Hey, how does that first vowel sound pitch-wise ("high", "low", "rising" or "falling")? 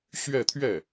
falling